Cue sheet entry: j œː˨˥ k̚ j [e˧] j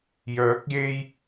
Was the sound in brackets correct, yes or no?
yes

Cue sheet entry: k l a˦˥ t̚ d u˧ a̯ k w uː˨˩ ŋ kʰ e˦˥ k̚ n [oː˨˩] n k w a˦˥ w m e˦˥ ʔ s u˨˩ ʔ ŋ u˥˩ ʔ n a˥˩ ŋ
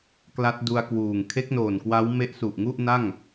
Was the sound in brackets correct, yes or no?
yes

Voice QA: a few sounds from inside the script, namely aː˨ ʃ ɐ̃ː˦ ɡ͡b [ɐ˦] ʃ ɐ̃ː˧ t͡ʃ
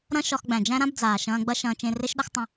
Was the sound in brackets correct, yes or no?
yes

